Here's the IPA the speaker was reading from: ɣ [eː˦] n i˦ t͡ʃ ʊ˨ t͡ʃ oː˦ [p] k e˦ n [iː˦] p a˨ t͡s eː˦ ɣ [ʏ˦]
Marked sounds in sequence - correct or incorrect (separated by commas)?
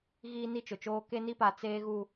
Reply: incorrect, incorrect, incorrect, incorrect